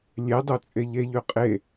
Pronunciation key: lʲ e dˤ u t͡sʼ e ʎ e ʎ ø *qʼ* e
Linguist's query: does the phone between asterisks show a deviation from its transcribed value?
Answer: no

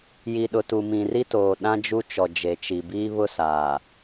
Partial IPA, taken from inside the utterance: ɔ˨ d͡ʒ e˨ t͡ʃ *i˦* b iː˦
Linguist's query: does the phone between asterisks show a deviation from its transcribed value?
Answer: yes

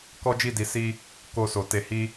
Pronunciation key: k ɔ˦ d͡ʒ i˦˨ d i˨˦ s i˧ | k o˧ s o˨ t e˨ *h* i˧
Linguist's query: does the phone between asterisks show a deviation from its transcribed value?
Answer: no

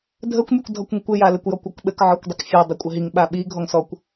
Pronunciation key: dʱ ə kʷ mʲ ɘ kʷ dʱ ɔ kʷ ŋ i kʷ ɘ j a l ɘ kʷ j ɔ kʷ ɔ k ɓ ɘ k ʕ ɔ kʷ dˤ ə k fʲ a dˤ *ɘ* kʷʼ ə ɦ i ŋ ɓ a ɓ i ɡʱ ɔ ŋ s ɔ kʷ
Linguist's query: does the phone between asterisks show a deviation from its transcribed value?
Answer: no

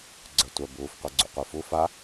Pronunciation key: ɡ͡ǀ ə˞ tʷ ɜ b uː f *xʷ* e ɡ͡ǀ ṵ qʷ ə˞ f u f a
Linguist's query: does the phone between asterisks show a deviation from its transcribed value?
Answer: yes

